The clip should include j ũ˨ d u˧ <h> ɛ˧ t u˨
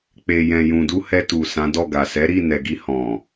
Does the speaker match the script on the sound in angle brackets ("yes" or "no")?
yes